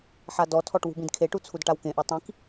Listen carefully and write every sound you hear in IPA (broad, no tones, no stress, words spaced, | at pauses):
ħadɔtʰɔʈ wṳbĩdkʰeʈu t͡sʰudʈawkẽʔu tˤĩk